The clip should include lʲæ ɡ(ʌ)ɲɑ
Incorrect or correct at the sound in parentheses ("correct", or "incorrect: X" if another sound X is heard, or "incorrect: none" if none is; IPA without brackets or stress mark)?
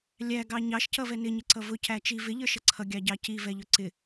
incorrect: ɑ